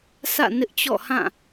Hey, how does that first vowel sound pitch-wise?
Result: falling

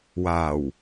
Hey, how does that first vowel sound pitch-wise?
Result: low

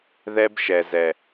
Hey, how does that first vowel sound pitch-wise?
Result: high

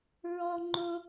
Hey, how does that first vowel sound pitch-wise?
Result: high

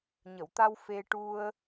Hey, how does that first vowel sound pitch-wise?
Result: low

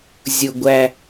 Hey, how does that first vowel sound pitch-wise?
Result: low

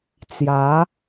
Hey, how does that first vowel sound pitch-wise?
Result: rising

